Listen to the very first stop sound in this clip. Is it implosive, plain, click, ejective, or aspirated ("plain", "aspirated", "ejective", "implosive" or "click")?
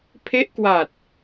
aspirated